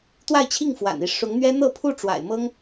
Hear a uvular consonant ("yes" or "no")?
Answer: no